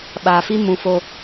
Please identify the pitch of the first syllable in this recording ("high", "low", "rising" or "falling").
low